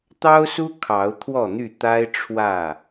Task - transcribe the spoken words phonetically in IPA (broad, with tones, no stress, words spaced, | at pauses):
t̪ɑ˦ʊ̯su˦ kʰɑ˨˦ʊ̯ t̪ʰwɔ˥˨n̪y˥˨ t̪a˦ɪ̯ ʈ͡ʂʰwä˥˨